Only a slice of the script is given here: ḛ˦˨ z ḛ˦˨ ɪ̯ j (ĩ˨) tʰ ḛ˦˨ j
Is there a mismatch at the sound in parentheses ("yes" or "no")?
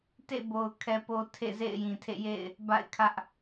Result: no